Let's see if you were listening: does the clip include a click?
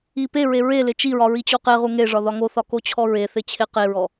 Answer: no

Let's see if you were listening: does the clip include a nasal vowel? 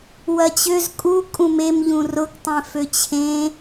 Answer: yes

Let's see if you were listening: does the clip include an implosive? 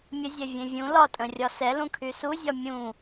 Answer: no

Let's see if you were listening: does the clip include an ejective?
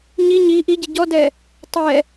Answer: no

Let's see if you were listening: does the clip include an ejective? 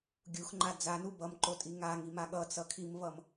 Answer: yes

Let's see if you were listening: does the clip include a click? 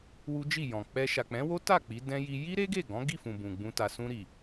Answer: no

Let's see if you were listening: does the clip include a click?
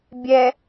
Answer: no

